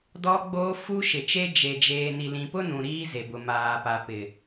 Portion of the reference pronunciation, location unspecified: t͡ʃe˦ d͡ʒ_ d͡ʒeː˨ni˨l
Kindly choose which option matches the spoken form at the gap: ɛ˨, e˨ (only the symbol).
e˨